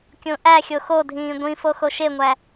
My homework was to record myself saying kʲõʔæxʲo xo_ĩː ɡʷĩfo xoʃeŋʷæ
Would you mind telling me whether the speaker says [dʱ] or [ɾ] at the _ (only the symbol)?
dʱ